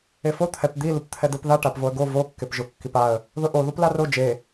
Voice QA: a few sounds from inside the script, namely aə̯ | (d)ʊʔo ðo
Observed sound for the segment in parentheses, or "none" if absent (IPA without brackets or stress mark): ð